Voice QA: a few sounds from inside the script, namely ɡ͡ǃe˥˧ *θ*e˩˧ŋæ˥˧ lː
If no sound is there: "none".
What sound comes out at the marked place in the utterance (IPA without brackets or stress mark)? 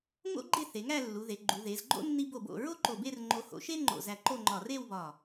θ